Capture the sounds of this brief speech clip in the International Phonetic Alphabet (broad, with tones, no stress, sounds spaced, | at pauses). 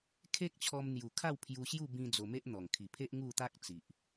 kʰ e˦ k̚ t͡ɕʰ ɔ˧ m n̪ j u˨˩ kʰ a˥˧ w pʰ j u˧ ɕ j u˥˧ b ĩ˧ d͡z o˧ m e˦ ʔ n̪ ɔ˨˩ ŋ kʰ i˨˩ pʰ e˦ ʔ ŋ u˥˧ t̪ a˦ k̚ t͡s i˨ ʔ